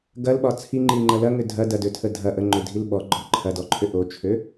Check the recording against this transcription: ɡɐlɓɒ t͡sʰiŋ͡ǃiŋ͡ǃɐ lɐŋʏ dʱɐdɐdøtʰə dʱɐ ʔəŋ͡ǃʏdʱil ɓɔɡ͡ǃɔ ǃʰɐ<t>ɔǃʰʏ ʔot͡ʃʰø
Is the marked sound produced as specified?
no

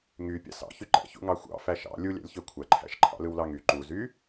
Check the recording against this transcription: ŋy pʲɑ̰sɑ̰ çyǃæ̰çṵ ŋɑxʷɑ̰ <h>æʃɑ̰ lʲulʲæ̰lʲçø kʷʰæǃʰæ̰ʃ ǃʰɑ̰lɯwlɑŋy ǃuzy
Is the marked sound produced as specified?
no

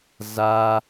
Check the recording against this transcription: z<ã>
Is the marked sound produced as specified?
no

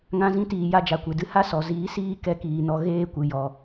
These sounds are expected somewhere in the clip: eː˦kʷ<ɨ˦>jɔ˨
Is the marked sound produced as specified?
no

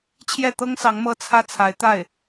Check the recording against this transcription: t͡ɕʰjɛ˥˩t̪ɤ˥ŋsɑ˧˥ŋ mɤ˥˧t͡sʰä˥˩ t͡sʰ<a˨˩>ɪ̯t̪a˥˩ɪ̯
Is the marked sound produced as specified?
no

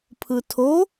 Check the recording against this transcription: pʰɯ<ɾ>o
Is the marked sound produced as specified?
no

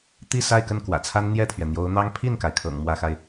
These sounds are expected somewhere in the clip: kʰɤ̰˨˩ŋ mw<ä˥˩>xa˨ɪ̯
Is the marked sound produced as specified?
no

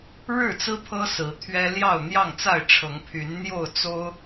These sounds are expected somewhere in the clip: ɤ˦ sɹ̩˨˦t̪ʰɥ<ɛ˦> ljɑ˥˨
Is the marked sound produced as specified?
yes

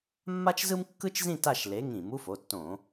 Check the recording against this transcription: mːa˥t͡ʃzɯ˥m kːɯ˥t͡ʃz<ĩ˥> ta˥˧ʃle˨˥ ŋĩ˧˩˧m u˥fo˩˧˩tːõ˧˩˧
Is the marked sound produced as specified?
no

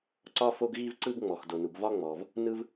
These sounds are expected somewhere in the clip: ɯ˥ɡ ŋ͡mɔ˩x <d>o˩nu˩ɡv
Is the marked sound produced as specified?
yes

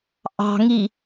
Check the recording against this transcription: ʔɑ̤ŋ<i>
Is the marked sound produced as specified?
yes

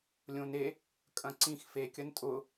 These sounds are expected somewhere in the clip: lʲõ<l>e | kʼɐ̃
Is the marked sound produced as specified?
no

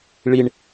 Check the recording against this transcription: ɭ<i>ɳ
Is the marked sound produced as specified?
yes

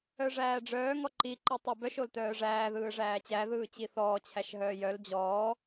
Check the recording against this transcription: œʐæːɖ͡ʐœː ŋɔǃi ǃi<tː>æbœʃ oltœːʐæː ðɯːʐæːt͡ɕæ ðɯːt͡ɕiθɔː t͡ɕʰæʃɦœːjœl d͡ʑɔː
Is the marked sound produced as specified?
no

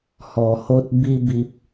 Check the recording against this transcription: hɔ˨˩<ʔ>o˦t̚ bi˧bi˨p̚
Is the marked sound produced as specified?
no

